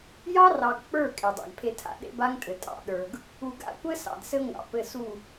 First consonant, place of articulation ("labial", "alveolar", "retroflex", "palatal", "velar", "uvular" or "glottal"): palatal